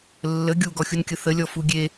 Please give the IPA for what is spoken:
lː ə ɡʲ u ɡ ɔ xʲ u n kʲ ə θ ə lʲ ɔ f u ɡʲ e

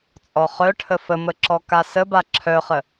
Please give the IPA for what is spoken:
t͡sʼ ɔ χ œ ʈʰ ə f ə m ə ǁ ɔ k a s ə b a ǁʰ œ χ ə

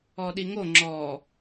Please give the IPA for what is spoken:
ɔ ɗ i ŋ o ŋ͡ǁ ɔ

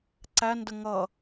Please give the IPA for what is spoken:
ǀ æ n d ə ŋ ʌ

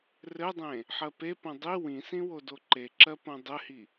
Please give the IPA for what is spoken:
r ɘ dˤ ẽ | ħ ɜ p e p õ dˤ i w ĩ s ĩ w o d o ǃ e ǁ ɜ p õ dˤ ɘ h i

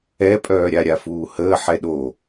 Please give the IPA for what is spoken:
ɛ pʼ œː ɾʲ a ɾʲ a f uː h əː ħ ɛ ɗ o

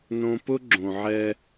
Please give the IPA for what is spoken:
n õ˦ p ʊ˦ ɡ͡ǁ õ˨ ʕ ɛ˦

